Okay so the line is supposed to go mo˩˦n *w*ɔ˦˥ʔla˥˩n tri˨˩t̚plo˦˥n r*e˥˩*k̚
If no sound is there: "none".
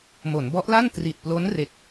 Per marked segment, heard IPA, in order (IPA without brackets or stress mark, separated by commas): b, e˦˥